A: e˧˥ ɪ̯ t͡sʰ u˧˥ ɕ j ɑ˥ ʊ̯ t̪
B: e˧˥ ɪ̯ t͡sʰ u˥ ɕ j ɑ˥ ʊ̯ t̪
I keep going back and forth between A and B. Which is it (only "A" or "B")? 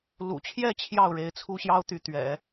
B